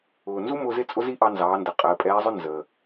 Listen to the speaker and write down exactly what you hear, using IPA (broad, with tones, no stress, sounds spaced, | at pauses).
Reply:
ʊː˩ n z u˥ m ʊː˧ z ɪ˥ t͡sʼ ʊ˥ z i˥ ʔ ɑ˧ n z ɑː˩˧ n d ə˩ qʼ əː˩˧ pʼ ɛː˧˥ zˤ ʊ˥ n z ə˩